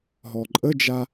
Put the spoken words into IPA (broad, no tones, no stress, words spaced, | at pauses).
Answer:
ɦɔǃʼəd͡ʒa